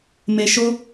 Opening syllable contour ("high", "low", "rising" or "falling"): low